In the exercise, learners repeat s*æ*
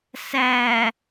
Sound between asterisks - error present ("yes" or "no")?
no